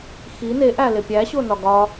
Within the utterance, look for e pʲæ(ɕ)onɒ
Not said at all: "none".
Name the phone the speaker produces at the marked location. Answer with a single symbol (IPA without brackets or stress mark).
ɕ